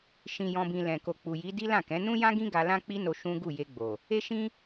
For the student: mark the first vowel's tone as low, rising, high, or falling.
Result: low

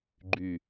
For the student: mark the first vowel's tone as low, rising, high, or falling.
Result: low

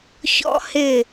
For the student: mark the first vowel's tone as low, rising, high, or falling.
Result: high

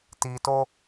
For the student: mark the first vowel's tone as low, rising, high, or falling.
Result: low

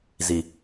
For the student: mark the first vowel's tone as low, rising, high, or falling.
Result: low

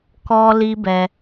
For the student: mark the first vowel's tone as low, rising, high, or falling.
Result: high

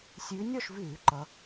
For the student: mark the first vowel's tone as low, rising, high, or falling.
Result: rising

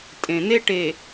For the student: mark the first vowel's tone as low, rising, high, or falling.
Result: low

